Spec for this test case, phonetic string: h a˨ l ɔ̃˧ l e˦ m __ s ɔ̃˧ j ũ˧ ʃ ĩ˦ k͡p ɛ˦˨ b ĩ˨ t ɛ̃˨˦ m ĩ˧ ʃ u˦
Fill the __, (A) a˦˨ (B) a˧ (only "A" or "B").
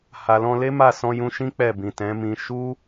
A